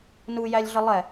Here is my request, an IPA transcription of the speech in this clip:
n u j æ lʲ ɮ ə lˠ ɛ

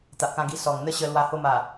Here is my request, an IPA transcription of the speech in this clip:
t̪ a˨ ʔ k ã˧ ɡ i˧ s ɔ˨˩ ŋ n̪ ə˦ ɕ ə˧ l w a˧ h o˧ m a˨˩

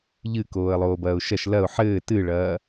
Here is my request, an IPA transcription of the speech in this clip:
ʎ ɨ k oː ə̯ lˠ oː b ɐː ʊ̯ ʃ ɐ ʃ l ɐ ʊ̯ ħ ɘː t ɨ ɭ ɐː

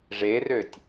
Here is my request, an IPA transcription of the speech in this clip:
ʐ e r ø tʲ

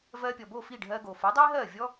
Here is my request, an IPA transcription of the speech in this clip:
v ɜː˧ pʲ ɔ˩ b o˥˩ f i˥˩ ɖʱ ɜː˧ ɡ oː˩ f o˩˥ dˤ iː˥ ɦ ɜː˥˩ vʲ ɔ˥

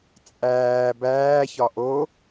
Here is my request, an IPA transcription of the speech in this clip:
t͡sʼ æː b æː ç ɒ ʔ o

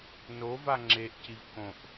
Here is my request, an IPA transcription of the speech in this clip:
n o v a ŋ͡ǁ e ʔ c i v k õ ʔ

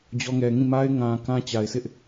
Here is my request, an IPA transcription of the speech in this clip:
d͡ʑ ɔ˦ ŋ ɛ˨ ŋ ĩ˦˨ m a˦ ɪ̯ ŋ ã˨ k ã˦ t͡ɕ a˨ ɪ̯ s ɪ˦ ʔ

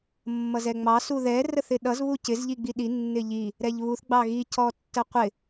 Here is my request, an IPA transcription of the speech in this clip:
mː ʌ z ɛ ŋ͡m ɑ s u ð ɛ r ə θ ɪ ɗ ʌ z β u c ɪ z ʎ i ɡ͡b i ɗ i nː ɪ ʎ i | ɾ ɛ ʎ β u θ ɡ͡b ɑ ɣ i c ɔ tː ə qʷ ɪ

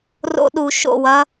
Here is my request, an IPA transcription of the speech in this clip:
r o̰˧ ɗ u˨ ʃ o̰˦˨ w ɐ˦

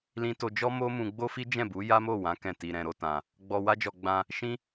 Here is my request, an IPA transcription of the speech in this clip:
l ĩ˧ t o˧ d͡ʒ ɔ˦ m o˦ m ũ˧ ɡ͡b o˦ f i˦ d͡ʒ ɛ̃˦˨ b u˨˦ j a˦ m o˦˨ w ã˨˦ k ɛ̃˦˨ t i˧ ɾ ɛ̃˧ ɾ o˦ t ã˧ | ɡ͡b ɔ˧ w a˦ d͡ʒ ɔ˧ ɡ͡b ã˧ | ʃ ĩ˦

